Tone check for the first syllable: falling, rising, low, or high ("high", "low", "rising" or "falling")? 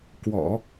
low